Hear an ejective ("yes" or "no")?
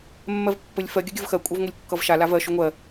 yes